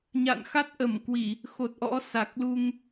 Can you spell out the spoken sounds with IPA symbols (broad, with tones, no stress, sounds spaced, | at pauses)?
ɲ a̰˧˨ n x a˦˥ t̚ ʔ ə˧˩ m k w i˧˩˨ | x o˨˩ t̚ ʔ ɔ̰˧˥ s a˨˩ k̚ l u˧ ŋ